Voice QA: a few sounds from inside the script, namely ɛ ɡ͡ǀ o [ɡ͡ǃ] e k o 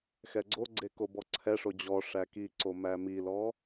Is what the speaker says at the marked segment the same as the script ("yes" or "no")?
no